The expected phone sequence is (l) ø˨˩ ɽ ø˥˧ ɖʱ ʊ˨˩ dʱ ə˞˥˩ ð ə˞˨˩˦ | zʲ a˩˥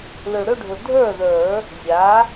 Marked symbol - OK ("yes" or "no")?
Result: yes